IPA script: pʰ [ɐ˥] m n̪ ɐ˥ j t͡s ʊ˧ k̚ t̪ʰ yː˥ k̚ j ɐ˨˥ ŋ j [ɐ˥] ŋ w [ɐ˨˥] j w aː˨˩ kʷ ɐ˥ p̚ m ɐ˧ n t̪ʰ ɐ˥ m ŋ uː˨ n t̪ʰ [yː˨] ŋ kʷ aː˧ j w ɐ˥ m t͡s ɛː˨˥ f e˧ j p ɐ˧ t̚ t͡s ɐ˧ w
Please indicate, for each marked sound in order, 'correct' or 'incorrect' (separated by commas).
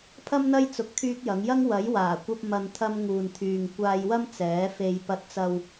correct, correct, correct, correct